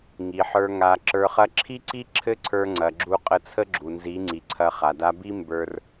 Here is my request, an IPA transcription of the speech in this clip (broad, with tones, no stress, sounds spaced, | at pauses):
ŋ i˨ ħ ə˞˧ ŋ a˨ ǁ ə˞˧ χ ɐ˦ ǁʰ i˦ ǀ i˦ ǁʰ ɘ˦ ǀʰ ə˞˧ ŋ͡ǀ ɐ˨ ɡ͡ǁ u˧ qʼ ə˧ t͡sʰ ə˦ ɡ͡ǁ u˨ n z i˨˦ ŋ͡ǀ i˨ ǀʰ ɐ˧ χ a˨ d a˧ b i˦ m b ə˞˦ r